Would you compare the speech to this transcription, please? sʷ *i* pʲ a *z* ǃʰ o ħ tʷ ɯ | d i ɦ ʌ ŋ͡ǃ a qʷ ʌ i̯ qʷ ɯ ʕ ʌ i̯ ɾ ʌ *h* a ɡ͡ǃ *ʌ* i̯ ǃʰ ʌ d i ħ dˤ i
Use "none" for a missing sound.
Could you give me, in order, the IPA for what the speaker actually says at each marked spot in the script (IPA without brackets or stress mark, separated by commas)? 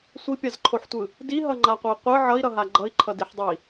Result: i, z, ɦ, ʌ